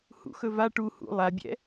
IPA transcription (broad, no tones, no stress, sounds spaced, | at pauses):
h ṵ x ɵ v a ʈ u h ṵ lˠ a bʲ ɛ̰